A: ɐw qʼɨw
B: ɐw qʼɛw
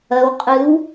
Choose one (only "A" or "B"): A